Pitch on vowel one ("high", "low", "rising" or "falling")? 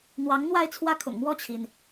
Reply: rising